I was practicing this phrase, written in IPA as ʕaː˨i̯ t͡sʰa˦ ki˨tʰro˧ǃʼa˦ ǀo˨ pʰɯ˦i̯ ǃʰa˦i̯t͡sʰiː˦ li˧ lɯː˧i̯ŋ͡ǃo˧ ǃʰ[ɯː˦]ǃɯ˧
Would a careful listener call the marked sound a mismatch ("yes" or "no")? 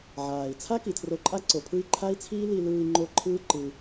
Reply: no